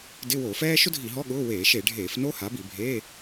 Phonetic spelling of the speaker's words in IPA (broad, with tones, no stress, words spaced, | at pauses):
dɪ˧˥˧wo˧˩˧fɛː˥ ʃʊ˥dʱi˧˩˧ɦɔ˧˥˧ ɠʊː˧˥˧ weː˧˩˧ʃe˧˩˧ɖʱeː˧˩˧f no˥ha˩˥bi˧˩˧ bʱeː˧˥˧